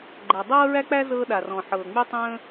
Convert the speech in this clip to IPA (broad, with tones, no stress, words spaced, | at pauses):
ɡ͡ǃæ˩ dˤɤː˥ɹæ˥k͡pæ˥ zɤː˧ɗa˩rɔ̃˩ħɤː˩ ŋ͡my˧tˤə̃ː˧